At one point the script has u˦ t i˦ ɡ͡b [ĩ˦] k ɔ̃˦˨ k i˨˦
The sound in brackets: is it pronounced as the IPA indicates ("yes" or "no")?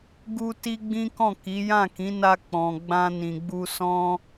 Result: yes